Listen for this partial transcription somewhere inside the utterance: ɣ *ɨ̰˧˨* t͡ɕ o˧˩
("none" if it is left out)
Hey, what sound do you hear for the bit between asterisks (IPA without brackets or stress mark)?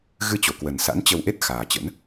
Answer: ɨ˧